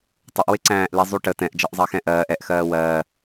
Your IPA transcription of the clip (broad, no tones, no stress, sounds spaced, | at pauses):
tˤ ʊ ʔ w ɪ ǀ æ̃ː ʔ l i zˤ u ʈ ə t ɛ̃ ʔ d͡ʒ ʌ ʔ zˤ ɑ x ɛ̃ ʔ ɜː ʔ ɛ ʔ x ɜː w ɜː